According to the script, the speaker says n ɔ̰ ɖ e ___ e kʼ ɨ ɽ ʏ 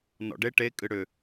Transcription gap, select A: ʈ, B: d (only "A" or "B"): A